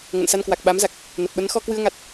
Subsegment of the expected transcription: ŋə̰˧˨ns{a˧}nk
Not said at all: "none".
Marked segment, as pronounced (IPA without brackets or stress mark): a˧